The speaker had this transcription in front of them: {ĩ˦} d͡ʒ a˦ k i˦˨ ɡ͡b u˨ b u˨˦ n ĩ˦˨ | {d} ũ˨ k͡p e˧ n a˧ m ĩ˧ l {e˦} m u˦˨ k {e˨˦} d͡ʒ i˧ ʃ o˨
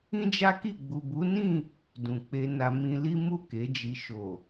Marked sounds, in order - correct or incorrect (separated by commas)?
correct, correct, incorrect, correct